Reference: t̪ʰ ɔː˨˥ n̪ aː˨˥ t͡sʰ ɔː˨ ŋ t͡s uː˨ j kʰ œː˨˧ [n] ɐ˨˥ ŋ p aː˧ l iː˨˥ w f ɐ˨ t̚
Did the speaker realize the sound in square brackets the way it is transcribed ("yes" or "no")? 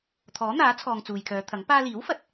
no